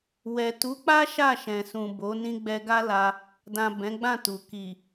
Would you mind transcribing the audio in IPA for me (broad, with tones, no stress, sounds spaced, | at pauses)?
w ɛ˨ t u˨˦ k͡p a˦ ʃ a˦˨ ʃ ɛ̃˨ s ũ˨ b o˨˦ n ĩ˧ ɡ͡b ɛ˧ ɡ a˦ l a˧ | d ã˨ b ɛ̃˨˦ ɡ͡b ã˦˨ t u˨ k i˨